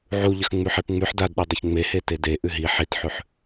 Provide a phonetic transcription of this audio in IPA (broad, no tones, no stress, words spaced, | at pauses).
ʕuʎəx ŋ͡mʉħepŋ͡mʉħ dadɗi dˤəçŋ͡mehe tede ʔʉɦi ħitħʉħ